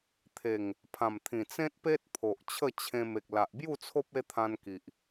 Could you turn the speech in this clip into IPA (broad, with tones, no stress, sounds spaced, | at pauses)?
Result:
t̪ʰ e˨˩ ŋ | pʰ ã˨˩ m t̪ʰ ĩ˨˩ t͡s ẽ˦ t̚ p e˦ t̚ pʰ o˨ ʔ t͡ɕʰ ə˥˧ t͡ɕʰ ẽ˧ m e˨ k̚ l a˨ ʔ b j u˥˧ t͡sʰ o˦ p̚ e˦ t̪ʰ ã˧ n k i˨ ʔ